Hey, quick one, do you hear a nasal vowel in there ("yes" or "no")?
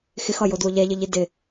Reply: no